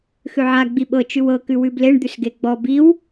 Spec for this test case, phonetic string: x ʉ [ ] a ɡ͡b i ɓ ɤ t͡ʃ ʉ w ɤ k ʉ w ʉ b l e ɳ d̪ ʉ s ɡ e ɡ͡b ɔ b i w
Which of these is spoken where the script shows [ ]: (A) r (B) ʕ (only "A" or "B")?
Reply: B